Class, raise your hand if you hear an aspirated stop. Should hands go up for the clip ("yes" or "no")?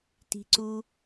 no